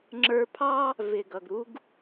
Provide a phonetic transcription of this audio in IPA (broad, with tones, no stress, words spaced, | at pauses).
ŋ͡ǁə˞˧pʰɑ˥ | vɪ˩ɡʌ˩ɡɾu˧ɡ